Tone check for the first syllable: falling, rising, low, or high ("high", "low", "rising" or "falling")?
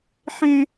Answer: high